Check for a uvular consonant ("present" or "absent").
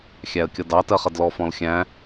present